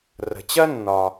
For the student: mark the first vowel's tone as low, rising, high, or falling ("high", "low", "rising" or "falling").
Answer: low